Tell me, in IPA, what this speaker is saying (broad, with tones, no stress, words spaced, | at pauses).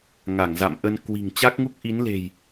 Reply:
ŋa˧˩ŋza̰˧˨mʔə˧n kwi̤˨˩ŋt͡ɕa˦˥k̚ŋu˦˥k̚ ʔi˨˦nle̤˨˩j